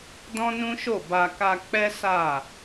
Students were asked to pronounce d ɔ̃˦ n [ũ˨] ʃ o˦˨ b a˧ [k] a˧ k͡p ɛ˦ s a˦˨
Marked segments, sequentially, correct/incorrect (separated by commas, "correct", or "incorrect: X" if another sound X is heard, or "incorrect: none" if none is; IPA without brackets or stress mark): incorrect: ũ˦, correct